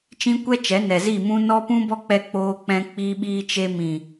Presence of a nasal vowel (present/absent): present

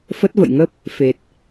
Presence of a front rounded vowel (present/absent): absent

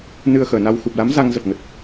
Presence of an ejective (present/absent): absent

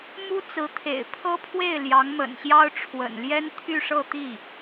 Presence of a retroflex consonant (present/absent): present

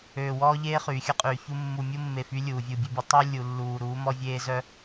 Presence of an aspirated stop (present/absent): absent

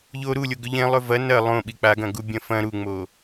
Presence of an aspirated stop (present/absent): absent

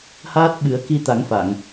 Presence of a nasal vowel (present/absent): absent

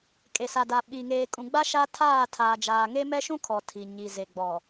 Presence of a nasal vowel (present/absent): present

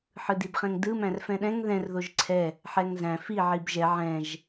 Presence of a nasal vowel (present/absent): present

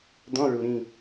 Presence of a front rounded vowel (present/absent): absent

